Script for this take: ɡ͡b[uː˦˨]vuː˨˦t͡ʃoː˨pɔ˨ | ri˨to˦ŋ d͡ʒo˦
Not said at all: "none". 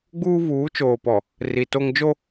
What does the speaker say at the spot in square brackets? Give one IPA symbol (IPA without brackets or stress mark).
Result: uː˦